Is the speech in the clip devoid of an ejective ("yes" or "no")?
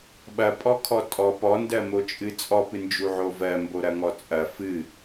no